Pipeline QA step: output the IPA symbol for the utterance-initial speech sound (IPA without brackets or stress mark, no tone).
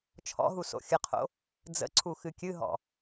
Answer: t͡ʃʰ